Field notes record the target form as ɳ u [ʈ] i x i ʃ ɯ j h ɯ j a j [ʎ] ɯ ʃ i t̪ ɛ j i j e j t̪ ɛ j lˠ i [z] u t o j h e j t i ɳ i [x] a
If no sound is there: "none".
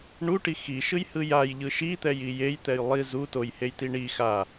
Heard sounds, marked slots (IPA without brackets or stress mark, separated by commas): ʈ, ʎ, z, x